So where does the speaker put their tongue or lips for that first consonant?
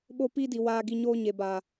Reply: lips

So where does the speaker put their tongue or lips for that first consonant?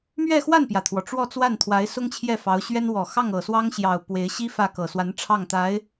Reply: lips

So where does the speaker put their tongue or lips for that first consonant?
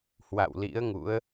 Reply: throat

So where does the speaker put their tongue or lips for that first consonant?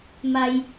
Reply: lips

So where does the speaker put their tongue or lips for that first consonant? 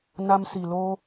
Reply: tongue tip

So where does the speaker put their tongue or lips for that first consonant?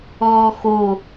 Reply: velum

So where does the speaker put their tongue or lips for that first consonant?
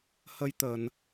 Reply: throat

